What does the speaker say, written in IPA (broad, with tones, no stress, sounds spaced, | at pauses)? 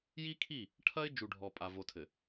j i˦ kʰ i˦˨ | ʈʰ ɐ˦ ɪ̯ d͡ʒ u˨ ɖʱ ɔ˨ pʼ a˨ v o˨ tʰ ɘ˨